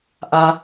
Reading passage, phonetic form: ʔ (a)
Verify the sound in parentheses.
correct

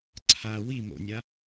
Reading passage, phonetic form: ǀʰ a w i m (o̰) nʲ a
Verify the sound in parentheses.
correct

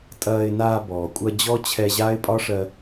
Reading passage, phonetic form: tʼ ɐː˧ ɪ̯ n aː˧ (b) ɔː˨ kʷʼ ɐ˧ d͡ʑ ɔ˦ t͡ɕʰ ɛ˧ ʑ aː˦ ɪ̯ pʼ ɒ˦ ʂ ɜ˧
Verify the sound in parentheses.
correct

